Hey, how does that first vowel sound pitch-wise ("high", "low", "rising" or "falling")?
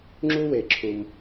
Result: high